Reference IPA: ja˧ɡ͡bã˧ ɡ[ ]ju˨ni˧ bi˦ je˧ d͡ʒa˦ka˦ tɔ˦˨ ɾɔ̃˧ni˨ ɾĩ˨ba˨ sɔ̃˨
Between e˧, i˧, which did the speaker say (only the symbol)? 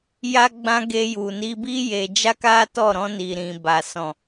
e˧